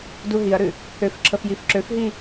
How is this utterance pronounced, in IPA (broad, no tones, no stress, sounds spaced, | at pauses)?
d u ɦ i ɐ̯ ɾ ʉ | h ø f ǁʰ ə f j i f ǁ ø f ɦ i